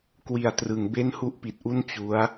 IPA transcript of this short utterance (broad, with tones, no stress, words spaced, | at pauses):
kwi˨˩a̯trɯ˩˦ŋbe˥˩n hu˥˩ʔpi˨˩t̚ʔu˥˩n t͡ɕu˦˥a̯